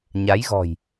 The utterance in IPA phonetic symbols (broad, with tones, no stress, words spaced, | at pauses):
ɲa˨˦jɣɔ̤˨˩j